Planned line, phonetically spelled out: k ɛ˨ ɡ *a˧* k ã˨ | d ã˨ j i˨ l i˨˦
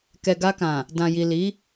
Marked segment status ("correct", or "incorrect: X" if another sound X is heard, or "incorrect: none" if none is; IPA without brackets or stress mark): correct